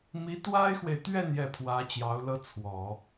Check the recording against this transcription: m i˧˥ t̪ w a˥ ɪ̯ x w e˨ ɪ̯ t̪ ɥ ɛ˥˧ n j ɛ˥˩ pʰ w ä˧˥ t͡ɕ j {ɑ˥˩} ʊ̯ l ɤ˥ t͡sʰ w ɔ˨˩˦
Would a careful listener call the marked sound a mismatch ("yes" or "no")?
yes